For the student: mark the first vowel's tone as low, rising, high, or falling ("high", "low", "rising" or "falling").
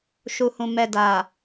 low